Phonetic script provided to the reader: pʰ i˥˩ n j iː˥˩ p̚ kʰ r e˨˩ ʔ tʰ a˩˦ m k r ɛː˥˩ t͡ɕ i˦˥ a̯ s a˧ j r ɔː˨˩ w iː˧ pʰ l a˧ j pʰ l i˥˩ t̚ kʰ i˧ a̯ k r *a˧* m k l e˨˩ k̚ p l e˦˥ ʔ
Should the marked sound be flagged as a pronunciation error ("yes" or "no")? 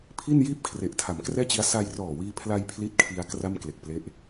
yes